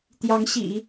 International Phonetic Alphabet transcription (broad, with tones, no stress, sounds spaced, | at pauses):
t̪ j ɑ˧˥ ŋ ɕ ḭ˨˩˦